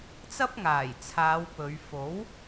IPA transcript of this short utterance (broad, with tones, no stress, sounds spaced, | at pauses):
t͡s ɐ˥ p̚ ŋ aː˨˩ j t͡sʰ aː˨˧ w p ɵ˨˧ ɥ f o˨˥ w